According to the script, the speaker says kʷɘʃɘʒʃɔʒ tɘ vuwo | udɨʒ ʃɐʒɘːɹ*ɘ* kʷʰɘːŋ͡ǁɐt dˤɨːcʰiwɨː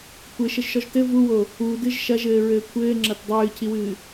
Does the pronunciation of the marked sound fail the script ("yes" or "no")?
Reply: yes